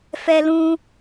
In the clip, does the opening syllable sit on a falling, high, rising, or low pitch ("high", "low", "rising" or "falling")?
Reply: high